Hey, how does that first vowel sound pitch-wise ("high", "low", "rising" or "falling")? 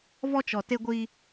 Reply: high